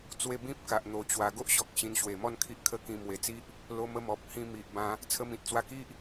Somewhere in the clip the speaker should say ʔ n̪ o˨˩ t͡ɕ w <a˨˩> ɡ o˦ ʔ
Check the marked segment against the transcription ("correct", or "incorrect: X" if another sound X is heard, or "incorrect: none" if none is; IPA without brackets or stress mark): correct